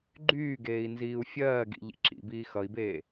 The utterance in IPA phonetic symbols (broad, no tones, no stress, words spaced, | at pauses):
ɡ͡ǃyːɡeːi̯ nziːu̯fʲɜːɡḭ ʎḭǁḭbiː xʌi̯beː